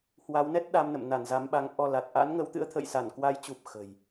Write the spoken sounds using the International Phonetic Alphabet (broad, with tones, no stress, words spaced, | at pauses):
hwa˨˦wnɛ˦˥t̚ ɗa˧mnə̰˧˨m na˧˩n za˨˦mɓa˨˦ŋ ʔɔ˧la˨˩t̚ ʔa̰˧˥nŋə˨˦wt̪ɨ̰˧˥ə̯ t̪ʰə̰˧˨jsa˧˩nkwa˨˦jt͡ɕu˨˩p̚ xə̤˨˩j